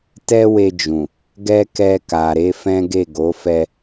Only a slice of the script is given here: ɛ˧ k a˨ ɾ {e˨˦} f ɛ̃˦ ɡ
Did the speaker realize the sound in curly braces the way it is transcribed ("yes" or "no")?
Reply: yes